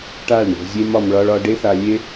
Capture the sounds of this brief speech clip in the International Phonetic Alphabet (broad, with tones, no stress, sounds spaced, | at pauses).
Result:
ʈ a˦˨ ɭ ɳ ɛ̤˧ zʲ e˦ m ɒ˧ m ɭ ɒ˧ ɭ ɒ˧ ɖ e˦ θ a˧ lʲ e˦